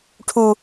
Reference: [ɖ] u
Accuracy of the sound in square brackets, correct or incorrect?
incorrect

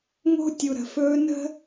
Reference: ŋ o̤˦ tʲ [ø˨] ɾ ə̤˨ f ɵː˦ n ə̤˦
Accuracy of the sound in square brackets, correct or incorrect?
incorrect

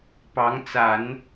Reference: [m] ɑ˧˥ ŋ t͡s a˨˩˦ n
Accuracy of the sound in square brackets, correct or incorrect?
incorrect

